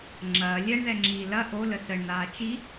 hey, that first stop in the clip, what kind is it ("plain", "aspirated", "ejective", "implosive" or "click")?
click